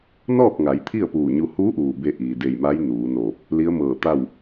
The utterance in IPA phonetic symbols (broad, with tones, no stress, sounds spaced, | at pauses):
n ɔː˥˨ k̚ ŋ a˩˧ j t̪ʰ i˥˨ ə̯ p uː˧˩ ɲ u˧ h uː˧˥ ʔ uː˩ b e˧ ʔ iː˩ d e˧˩ j m a˧˥ j n uː˩˧ n oː˧˩ p̚ | l i˧˥ ə̯ m ɤː˧˩ t̪ a˥˨ w